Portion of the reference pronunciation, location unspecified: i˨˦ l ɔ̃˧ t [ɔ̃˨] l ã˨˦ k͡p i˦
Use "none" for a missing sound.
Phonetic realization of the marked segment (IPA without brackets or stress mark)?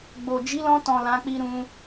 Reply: ɔ̃˨